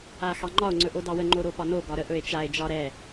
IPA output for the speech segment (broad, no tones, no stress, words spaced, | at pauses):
axɑŋ͡ǃɒo̯ ŋ͡ǀɵʔodɑwə ŋ͡ǃoɾopɒno ɡɒɾəʔ ɵe̯t͡ʃae̯ d͡ʒɒɾɛ